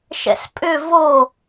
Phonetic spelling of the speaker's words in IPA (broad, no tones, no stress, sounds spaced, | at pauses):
ʃ ɛ̰ s pʼ ʏ v o